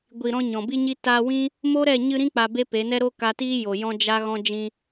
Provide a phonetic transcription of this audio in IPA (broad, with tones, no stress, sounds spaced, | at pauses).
ɡʷ i˨ ɾ ɔ̃˧ ɲ ɔ̃˨ b i˦ ɲ i˦ t a˧ w ĩ˦ | m o˦ ɾ ɛ˦˨ ɲ ɨ˧ ɾ ĩ˦ k͡p a˧ b e˦ p e˨˦ n ɛ˦ ɾ o˦ k a˧ t iː˦ j o˨ j ɔ̃˦ d͡ʒ a˦ ɣ ɔ̃˦ d͡ʒ ĩ˧